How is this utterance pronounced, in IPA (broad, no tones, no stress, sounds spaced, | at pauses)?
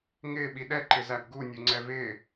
ŋ ɪː ɓ i ɗ ɛ ǃ ɪ z æ b ɡ u nʲ u ŋ͡ǀ ɛ v ɪː